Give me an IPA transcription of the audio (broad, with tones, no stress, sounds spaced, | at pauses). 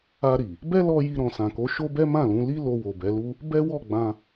a˧ ɾ i˨ | b ɛ˦ l ɔ˧ j i˧ ɾ ɔ̃˨ s ã˨ k o˨˦ ʃ o˦ b ɛ˦ m ã˦˨ l ũ˨˦ l i˦ l o˧ w o˨ b ɛ˨˦ l u˦ | b ɛ˦ w ɔ˦˨ ɡ͡b ã˧